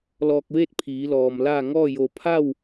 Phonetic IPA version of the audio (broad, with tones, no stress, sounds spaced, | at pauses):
l ɔː˧ k̚ ʋ eː˥˨ t̚ pʰ iː˩˧ l ɔː˩ m l a˥˨ ŋ ɔː˥˨ j o˧˩ pʰ a˥˨ w